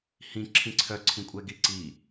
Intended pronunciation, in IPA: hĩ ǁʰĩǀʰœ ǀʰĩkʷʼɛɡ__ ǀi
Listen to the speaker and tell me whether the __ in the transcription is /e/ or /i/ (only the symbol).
i